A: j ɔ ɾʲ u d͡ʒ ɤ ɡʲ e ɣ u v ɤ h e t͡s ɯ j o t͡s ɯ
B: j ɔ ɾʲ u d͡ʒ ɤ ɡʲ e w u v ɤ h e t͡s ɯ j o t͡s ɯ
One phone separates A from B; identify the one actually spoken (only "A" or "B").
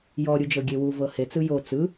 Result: B